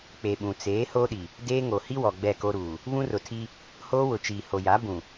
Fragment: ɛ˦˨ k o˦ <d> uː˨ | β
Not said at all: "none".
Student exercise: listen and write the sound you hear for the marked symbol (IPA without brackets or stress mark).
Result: ɾ